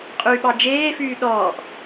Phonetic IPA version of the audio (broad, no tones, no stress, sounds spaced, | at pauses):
qʼ y ɓ ɑ d͡ʒ eː f yː ɗ ɔː ʔ